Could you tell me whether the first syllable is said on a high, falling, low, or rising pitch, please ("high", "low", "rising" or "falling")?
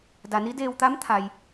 low